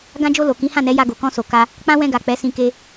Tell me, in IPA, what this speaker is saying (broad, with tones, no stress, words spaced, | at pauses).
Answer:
ɡã˧d͡ʒo˧ lo˨kĩ˨˦hã˦˨ nɛ˨˦ja˧ɡo˨ kɔ̃˧so˨ ka˧ | k͡pã˦wɛ̃˧ɡa˨ k͡pɛ˨˦sĩ˧ ke˧